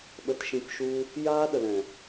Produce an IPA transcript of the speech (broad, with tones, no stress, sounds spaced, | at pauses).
ɓ ə˧ t ʃ ĩ˧ p ʃ u˦ | j aː˦ ɗ ə˨ l ɛ̃˨